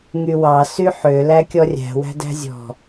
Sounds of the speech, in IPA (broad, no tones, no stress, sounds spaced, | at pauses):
ŋ y w ɑ s y ħ ø l æ kʲ ɔ rʲ æ̤ w æ̤ d æ̤ zʲ ɔ̤